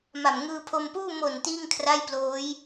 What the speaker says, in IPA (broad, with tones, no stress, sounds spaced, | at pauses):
m a˨˩ m ŋ ɯː˧ pʰ o˧ m p uː˥˩ m o˨˩ n t iː˥˩ ŋ kʰ r a˥˩ j p l oː˦˥ j